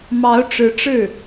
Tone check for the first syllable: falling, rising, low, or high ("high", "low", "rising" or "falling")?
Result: rising